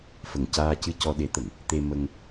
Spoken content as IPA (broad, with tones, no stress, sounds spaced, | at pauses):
f ə˨˩ ŋ c aː˧ c ɨ˧ c ɔ˧ ɗ e˧˥ t̪ ə˨˩˨ ŋ | t̪ e˧ m ə˧ ŋ